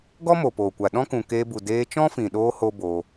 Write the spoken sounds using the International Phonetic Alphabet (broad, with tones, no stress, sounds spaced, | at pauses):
ɡ ɔ˦ m o˨ p oː˨ kʷ a˨ ɗ ɔ̃˦ k ũ˨ k eː˧ b u˨ d eː˧ t͡ʃ ɔ̃˦ f ĩ˨ ɗ oː˧ h o˦ b oː˧